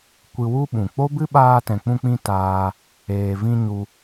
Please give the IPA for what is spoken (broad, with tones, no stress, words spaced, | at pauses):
kʷɨ˧wu˦ɓũ˨ k͡po˦bɨ˦ɓaː˧ tɛ̃˨k͡pũ˧k͡pĩ˧ taː˧ | eː˨vĩ˧ ɲu˧